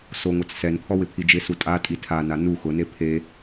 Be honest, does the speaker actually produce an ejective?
yes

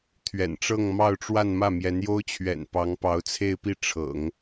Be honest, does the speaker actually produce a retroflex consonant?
yes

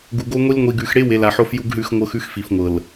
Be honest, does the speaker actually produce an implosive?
no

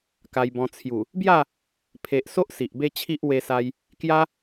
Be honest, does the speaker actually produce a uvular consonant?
no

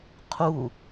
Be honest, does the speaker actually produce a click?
no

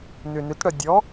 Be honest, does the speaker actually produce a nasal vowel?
no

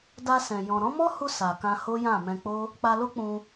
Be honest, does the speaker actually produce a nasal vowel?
yes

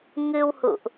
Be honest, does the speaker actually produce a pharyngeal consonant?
no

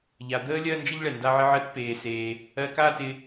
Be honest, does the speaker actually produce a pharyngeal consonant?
yes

